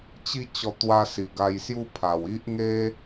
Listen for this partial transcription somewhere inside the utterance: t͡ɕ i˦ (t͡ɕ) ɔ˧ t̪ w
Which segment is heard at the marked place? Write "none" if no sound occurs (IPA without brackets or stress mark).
t͡ɕ